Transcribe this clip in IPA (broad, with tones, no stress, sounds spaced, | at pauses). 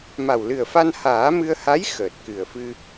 m a˨˩ w l ɨ˨˩ ə̯ f a˧ n h aː˨˩˦ m ɨ˧ ə̯ h a˧˥ j x əː˨˩ t̚ k ɨ˨˩ ə̯ f ɨ˧